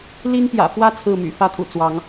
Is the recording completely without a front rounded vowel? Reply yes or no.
no